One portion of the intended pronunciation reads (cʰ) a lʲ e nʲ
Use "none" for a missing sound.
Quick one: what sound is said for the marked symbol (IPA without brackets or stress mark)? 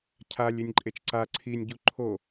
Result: cʰ